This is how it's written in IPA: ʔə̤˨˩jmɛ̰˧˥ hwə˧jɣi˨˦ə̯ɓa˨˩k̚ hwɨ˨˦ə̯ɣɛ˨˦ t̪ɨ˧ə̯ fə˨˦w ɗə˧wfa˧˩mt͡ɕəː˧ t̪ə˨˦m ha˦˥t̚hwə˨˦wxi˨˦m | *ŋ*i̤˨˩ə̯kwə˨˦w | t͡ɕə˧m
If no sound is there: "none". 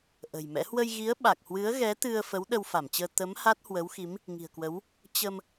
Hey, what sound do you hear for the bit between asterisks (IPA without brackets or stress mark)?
ŋ